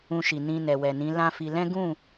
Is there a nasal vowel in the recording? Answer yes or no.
yes